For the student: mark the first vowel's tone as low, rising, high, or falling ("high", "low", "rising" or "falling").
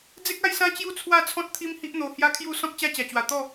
high